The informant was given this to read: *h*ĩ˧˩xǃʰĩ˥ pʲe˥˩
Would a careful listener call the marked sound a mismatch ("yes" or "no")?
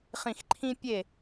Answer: yes